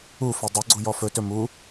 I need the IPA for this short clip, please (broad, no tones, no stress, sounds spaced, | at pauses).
u f ɵ dˤ ɵ ɡ͡ǀ u j ɔ f ɵ t ɵ m u